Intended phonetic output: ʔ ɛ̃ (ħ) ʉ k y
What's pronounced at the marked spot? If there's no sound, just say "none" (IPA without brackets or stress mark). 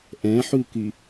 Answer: ħ